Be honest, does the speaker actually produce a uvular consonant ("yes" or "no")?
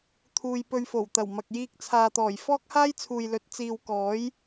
no